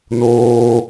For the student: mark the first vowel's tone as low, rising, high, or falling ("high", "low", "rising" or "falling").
high